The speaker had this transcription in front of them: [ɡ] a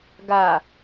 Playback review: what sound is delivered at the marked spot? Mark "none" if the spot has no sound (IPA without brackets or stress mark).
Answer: ɡ